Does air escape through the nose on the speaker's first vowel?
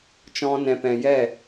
yes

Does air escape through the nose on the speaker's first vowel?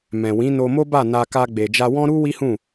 yes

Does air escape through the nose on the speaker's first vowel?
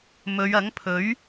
no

